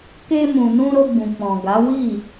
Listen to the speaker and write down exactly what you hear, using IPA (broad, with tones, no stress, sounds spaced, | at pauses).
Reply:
k e˧ m ũ˨ n ũ˧ ɾ o˧ ɡ͡b ũ˨ k͡p ɔ̃˨ ɡ a˨˦ w i˦˨